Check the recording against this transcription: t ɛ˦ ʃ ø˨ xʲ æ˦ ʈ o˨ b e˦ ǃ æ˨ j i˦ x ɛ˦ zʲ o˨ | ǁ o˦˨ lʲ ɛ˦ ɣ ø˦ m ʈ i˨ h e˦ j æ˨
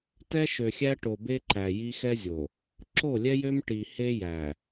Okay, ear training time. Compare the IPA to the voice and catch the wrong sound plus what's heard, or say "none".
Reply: ɣ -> j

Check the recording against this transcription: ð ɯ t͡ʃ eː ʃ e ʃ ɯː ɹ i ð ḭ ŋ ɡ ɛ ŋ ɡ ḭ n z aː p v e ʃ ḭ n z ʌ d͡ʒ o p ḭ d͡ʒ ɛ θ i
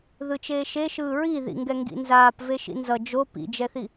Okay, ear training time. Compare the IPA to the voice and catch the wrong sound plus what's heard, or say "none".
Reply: none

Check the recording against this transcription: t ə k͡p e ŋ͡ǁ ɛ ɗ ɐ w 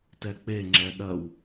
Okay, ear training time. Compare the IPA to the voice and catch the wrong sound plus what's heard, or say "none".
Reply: ə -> ɛ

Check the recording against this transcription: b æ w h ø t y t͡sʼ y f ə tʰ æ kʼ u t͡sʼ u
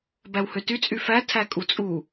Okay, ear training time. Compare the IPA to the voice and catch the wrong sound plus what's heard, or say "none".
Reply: ə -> æ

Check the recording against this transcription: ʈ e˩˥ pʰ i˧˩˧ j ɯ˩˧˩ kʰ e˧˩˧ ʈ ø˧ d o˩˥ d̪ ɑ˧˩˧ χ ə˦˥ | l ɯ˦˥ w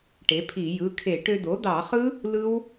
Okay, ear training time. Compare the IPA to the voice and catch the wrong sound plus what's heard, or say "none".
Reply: ə˦˥ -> ɯ˦˥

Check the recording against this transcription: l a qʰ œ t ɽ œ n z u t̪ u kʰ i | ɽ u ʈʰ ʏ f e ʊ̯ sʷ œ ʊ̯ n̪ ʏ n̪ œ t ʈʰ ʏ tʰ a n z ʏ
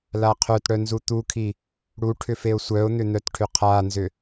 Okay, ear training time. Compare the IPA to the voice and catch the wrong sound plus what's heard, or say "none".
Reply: tʰ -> qʰ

